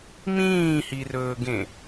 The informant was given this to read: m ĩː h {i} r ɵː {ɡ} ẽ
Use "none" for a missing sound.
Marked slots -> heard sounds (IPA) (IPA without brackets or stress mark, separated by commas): i, ɡ